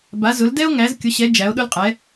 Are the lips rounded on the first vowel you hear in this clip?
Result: no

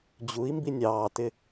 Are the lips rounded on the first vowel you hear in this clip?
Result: yes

